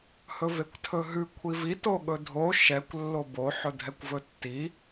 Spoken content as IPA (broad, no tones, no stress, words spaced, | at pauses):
hɵvekʷtʰɵɦʉ kʷʰivi toɠɵdʱo ʃɛkʷ lːobo ħɵdʱɛkʷvɵtːi